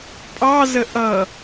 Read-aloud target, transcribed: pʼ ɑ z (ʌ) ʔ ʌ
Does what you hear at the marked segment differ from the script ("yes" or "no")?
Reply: yes